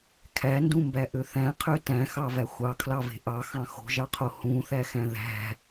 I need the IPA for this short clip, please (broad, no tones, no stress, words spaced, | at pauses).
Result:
kʰændũmbæʔø θæ̃qʰø tæ̃xɑvæ xʷɑkʰlɑve̤ ʔɑxɑ̃ xo̤ʒɑqʰo hũθæxæ̃ ðæ̤